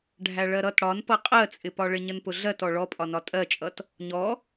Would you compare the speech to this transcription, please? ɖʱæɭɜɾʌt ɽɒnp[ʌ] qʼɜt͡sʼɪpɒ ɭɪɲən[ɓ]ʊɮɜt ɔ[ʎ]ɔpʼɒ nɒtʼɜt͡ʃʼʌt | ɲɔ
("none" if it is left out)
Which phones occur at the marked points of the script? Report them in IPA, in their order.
ʌ, p, ɭ

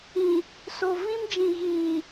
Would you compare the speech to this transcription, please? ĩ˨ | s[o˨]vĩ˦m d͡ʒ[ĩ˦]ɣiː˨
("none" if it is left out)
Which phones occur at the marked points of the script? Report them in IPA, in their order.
o˨, ĩ˨

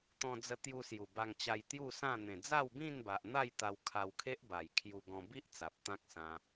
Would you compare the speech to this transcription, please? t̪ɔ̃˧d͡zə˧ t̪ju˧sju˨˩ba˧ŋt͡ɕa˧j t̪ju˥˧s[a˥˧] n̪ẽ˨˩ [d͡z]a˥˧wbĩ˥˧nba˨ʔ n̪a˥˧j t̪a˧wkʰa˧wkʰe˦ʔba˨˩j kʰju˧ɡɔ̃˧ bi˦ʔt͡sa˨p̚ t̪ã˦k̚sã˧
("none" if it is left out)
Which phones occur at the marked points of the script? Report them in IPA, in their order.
ã˥˧, d͡z

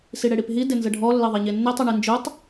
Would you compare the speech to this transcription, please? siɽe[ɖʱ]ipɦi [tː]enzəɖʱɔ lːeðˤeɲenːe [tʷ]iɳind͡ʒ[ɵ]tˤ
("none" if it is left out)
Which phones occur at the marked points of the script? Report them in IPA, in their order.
ɽ, d, tˤ, ɵ

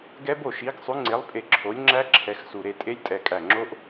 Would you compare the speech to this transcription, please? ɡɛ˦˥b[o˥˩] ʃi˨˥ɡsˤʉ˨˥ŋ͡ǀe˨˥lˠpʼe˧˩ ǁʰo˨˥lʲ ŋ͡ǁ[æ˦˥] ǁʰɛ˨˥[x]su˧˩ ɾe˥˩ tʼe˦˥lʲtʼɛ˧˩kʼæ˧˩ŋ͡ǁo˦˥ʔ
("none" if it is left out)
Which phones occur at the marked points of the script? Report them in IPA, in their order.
o˥˩, æ˦˥, x

